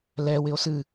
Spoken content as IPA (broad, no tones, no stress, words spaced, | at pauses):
lɛ wɪo̯sɨ